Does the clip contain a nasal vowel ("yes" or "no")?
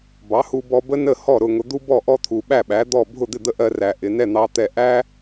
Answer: no